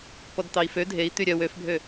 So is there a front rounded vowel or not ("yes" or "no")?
yes